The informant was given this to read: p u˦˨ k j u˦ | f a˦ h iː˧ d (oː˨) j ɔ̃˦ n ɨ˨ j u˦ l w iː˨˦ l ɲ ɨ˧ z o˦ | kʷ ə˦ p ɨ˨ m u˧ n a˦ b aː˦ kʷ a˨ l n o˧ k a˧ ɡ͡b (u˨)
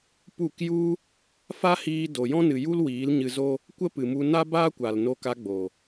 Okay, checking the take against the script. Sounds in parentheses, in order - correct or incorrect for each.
incorrect, incorrect

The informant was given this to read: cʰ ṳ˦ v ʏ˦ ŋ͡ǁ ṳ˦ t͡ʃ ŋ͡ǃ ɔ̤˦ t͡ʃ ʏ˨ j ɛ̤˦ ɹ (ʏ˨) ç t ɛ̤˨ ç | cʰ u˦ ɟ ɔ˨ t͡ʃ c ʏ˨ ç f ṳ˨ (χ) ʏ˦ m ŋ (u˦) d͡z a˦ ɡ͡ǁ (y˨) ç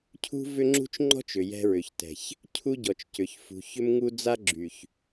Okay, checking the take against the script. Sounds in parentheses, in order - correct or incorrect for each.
correct, incorrect, correct, correct

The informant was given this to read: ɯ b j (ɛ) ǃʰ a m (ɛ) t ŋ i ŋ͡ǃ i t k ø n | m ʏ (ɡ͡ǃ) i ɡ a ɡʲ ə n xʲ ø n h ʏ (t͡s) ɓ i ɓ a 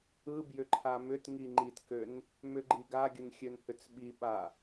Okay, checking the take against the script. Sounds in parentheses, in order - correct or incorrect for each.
incorrect, incorrect, correct, correct

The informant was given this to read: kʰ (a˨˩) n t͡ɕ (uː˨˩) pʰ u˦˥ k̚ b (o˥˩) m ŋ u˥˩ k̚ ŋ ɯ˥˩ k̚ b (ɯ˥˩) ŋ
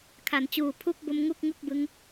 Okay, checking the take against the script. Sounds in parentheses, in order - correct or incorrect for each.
incorrect, correct, incorrect, incorrect

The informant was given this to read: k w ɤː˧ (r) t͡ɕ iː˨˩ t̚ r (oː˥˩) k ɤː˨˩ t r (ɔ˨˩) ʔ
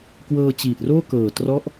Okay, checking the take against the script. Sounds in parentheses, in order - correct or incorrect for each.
incorrect, correct, incorrect

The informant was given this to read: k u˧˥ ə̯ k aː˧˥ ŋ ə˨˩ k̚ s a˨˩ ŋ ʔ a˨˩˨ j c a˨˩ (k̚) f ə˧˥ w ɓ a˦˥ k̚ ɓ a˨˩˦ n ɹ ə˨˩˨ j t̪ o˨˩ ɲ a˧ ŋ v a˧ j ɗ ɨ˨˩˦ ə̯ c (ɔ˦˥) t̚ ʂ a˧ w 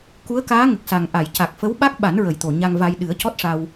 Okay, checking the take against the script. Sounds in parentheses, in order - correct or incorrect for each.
correct, correct

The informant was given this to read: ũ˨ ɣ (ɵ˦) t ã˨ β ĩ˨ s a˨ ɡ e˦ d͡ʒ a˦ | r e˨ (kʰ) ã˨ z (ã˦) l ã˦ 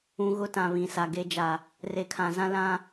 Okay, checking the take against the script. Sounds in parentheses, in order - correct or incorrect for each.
incorrect, correct, correct

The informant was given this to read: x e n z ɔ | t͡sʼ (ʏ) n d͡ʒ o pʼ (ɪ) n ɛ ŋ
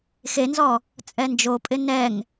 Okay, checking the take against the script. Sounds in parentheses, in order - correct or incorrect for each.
incorrect, correct

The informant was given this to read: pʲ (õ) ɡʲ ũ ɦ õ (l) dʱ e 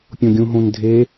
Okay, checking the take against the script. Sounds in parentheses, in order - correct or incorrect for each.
correct, incorrect

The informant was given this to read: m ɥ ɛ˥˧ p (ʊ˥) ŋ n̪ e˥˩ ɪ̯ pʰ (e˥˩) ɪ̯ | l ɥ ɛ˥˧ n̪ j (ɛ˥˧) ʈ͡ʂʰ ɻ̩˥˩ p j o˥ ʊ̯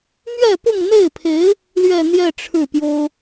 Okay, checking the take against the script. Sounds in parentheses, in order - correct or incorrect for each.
incorrect, incorrect, correct

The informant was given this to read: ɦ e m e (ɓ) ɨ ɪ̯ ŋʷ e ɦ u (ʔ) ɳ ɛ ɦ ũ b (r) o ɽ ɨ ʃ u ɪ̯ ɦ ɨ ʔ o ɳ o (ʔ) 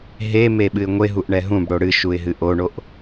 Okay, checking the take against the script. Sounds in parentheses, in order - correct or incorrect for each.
correct, correct, incorrect, correct

